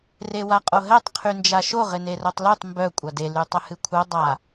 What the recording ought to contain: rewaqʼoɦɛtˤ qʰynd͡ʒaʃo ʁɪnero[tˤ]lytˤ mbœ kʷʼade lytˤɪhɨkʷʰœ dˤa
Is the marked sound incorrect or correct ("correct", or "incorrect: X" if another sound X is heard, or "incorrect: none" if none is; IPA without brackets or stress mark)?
correct